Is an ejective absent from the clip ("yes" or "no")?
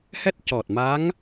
yes